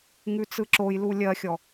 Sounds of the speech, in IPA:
ŋʉt͡sɯǁojlu lʲɜxʲɔ

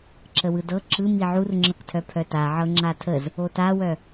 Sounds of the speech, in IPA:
ǁəwɯdɤ ǁɯ miʕurŋ͡ǁɤktʰœ pʰœtaʕɤ ŋ͡ǁatʰəz | otawœ

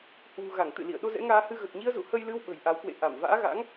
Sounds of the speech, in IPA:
hwṳ˨˩ɣa˧˩ŋ t̪ɨ̰˧˨lḭ˧˨ə̯ ɗo˧zɛ̰˧˥ŋaː˧hɨ˧ ɣə˨˩t̚ɲi˧ə̯zṵ˧˨ hə˧jlɨ˧w ɓə̤˨˩jʔa˨˦wkwḛ˧˨ ʔa˧˩m va̰ː˧˥ɣa̰˧˥ŋ

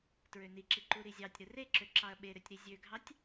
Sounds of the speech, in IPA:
tɹøniǁi ǃuɾizʲɑtʲ ɾɯreǁøǁɑɐ̯ ɓeɾøtʲɾi zʲøɡʱɑtʲ

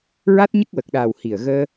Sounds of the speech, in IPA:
ɹa˦˥t̚ɲə˦˥k̚wə˨˩k̚ɗaː˨˩w hi˨˩ə̯ ɣəː˧

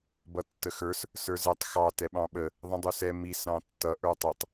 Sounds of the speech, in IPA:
bʌtːəxə˞s | sə˞zɛtˤ xɑ tɛɓɑ̃ɓə | ðˤə̃dˤusɛ mis ɾɑ̃tːʌ ʔə˞tˤɪtˤ

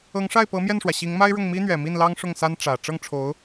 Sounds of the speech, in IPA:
ɤ˧˥ŋʂa˥˩ɪ̯ pɤ˧˥mjɛ˥˩nʂwä˩ ɕi˧˥ŋma˥ɪ̯ɻʊ˥˩ŋ mi˥n̪ɥɛ˨˩mi˥˩n lɑ˥ŋʂʊ˥˩ŋsa˥n ʈ͡ʂä˨˩ ʈ͡ʂɤ˥˩ŋʈ͡ʂʰo˧˥ʊ̯

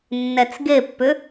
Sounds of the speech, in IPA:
nːɛt͡sɡepːʏ

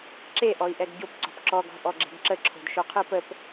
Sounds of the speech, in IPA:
ǁeʔɔi̯ʔɛɡ ɟopǀɔ̤p ǁɔɡɔ̤ ʔɔɡ͡ǁe̤ɡǁəǁʰo̤d ʃoqʰɯpəp

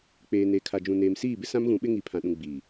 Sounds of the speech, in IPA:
k͡peː˨ neː˨kʰa˨ d͡ʒũ˨ neː˨msiː˦˨bɪ˦sã˦m ɣũ˨˦ɓɪ˦ŋi˨ pʰã˨ɗũ˨ ɡ͡biː˨

